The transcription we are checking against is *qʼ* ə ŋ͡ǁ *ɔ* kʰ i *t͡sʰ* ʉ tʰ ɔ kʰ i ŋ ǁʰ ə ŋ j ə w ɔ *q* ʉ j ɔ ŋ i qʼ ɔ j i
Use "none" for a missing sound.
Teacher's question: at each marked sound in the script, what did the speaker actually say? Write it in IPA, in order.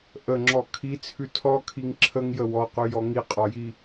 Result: ʔ, ɔ, t͡sʰ, q

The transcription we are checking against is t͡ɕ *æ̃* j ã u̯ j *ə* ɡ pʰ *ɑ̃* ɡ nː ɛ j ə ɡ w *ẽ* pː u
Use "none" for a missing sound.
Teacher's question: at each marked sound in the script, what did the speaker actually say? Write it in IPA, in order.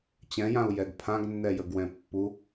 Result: ɛ̃, ɛ, ã, ɛ̃

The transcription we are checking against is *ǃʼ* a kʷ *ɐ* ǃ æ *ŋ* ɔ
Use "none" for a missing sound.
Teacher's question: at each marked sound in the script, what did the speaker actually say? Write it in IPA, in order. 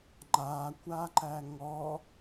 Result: ŋ͡ǃ, a, ŋ

